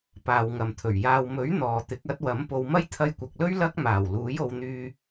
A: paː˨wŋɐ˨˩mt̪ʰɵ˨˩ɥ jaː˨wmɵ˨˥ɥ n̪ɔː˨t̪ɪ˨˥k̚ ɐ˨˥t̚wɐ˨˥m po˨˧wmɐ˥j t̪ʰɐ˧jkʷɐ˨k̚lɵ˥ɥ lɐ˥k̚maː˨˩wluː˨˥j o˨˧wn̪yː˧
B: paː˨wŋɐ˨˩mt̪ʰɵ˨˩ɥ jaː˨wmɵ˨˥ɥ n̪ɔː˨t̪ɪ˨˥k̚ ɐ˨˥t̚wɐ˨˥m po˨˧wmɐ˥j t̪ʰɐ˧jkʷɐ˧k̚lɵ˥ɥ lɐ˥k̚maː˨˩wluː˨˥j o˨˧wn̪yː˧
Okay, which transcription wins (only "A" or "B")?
A